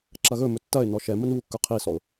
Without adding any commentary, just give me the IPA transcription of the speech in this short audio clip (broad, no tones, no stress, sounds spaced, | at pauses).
ǁ ɐ ɣ ɵ m ɵ tː ɐ ɪ̯ n ɔ ʃ ɛ m ə n β u kː ɵ qʰ i s ɔ ʊ̯